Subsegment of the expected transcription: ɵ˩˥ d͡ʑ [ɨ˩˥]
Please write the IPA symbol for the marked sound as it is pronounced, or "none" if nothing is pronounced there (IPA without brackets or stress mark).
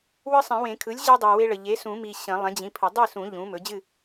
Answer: ɨ˥˨